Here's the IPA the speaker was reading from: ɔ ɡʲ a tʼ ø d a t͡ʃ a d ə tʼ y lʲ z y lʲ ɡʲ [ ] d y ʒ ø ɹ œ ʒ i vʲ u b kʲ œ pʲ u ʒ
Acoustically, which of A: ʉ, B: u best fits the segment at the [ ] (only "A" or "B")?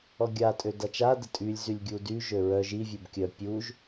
B